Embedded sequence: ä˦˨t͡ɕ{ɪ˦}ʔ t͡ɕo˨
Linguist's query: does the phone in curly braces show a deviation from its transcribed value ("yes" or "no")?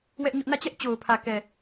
yes